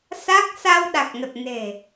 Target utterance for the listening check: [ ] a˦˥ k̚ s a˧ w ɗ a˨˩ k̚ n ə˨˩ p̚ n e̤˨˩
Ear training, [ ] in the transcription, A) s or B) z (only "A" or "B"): A